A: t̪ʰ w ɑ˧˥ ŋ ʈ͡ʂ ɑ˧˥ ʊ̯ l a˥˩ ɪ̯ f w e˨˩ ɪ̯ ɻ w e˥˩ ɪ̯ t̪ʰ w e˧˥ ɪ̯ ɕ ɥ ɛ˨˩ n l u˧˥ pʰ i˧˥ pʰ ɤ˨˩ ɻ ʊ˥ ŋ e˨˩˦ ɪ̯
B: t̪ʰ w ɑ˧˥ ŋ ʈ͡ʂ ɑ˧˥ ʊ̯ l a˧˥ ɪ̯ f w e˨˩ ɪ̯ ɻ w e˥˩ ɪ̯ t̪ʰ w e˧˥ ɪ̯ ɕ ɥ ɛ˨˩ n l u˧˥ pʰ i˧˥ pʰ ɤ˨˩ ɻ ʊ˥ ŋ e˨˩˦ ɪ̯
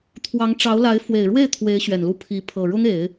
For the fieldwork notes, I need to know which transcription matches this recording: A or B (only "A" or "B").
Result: B